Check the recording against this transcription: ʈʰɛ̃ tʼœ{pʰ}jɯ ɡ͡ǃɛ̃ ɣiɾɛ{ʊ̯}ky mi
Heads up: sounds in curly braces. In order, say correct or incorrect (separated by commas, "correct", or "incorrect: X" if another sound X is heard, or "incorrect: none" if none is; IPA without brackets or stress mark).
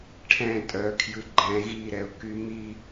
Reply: incorrect: kʰ, correct